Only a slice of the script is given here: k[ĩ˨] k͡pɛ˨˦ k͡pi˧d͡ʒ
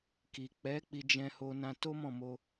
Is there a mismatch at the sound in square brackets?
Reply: yes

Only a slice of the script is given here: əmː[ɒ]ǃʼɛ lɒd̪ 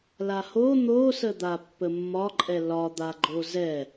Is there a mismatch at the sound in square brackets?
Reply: no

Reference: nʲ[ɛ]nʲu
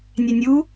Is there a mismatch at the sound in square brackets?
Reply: no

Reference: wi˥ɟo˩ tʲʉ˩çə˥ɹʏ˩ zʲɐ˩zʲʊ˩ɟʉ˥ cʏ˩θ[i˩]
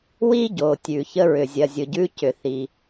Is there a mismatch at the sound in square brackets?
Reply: no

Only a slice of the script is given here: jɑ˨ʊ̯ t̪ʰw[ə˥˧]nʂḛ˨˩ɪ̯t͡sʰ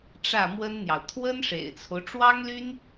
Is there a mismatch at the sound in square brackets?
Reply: yes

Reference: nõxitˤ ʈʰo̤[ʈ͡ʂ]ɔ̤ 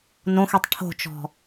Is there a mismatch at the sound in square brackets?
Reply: yes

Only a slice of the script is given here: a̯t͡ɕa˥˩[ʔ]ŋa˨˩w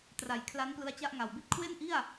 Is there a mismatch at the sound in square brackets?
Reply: no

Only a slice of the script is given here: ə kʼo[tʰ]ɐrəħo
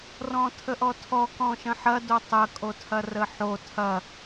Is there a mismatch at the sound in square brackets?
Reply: no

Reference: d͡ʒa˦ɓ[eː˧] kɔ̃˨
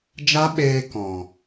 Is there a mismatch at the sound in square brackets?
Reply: no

